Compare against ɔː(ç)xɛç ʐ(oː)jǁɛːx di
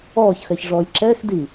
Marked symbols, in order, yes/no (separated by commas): yes, no